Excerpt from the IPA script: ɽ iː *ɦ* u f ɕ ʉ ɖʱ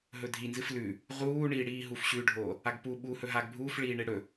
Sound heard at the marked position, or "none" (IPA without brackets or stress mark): ɦ